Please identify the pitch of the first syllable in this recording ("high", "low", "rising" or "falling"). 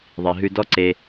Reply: low